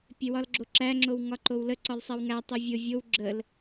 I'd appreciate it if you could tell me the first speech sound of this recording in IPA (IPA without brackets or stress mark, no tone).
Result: pʲ